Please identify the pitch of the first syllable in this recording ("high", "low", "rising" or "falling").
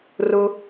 low